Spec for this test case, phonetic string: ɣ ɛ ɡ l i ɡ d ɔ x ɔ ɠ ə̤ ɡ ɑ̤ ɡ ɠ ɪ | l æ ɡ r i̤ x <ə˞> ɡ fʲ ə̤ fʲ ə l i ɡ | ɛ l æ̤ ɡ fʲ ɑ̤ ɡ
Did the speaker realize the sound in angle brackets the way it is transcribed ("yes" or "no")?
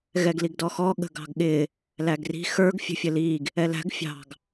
yes